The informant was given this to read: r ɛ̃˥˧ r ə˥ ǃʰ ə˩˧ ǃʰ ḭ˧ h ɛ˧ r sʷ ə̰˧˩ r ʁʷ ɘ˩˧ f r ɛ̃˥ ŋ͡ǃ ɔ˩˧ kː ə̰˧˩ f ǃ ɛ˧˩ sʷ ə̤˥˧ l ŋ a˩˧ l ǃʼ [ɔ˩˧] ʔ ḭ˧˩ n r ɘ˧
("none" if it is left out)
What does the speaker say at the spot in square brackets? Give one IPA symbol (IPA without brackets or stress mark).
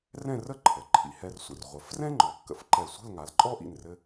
ɔ˥